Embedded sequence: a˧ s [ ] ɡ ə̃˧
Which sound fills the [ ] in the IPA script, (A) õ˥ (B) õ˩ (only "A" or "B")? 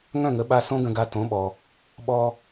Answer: A